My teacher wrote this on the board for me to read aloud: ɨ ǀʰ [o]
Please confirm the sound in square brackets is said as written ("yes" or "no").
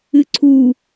no